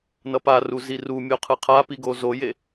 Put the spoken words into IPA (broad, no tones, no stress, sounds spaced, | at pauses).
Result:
n ʌ p a r u z i r u mʲ o qʰ ɯ qʰ a p i ɡ o z o j e